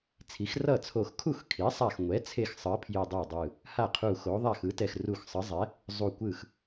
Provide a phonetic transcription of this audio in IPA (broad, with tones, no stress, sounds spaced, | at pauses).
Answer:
t͡sʰ i˩˥ x r ʌ˥˩ t͡sʰ o˧˩ x kʰ u˥˩ x kʰ i˩˥ sˤ a˧˩ x ŋʷ ɛ˩˥ t͡sʰ e˥˩ x sˤ ɯ˩˥ ə̯ pʰ j ɯ˧˩ dˤ e˥˩ dˤ ɯ˧˩ | h a˥˩ qʰ u˧˩ x o˩˥ ðˤ a˥˩ x ɯ˩˥ t ɛ˧˩ x r u˧˩ x sˤ ɯ˩˥ zˤ ɛ˩˥ | zˤ u˧˩ kʷ ɯ˥˩ x